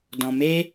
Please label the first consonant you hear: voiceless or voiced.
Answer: voiced